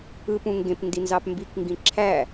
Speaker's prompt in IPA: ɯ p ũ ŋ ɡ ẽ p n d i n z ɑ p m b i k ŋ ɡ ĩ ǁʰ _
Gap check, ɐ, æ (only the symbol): æ